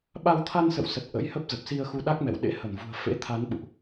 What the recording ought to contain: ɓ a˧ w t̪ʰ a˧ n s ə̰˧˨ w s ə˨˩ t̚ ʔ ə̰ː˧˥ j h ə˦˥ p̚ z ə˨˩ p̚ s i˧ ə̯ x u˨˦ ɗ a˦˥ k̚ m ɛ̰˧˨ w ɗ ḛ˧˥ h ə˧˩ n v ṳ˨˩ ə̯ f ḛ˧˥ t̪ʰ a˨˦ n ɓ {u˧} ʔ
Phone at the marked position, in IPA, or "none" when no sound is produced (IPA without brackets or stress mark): ṵ˧˨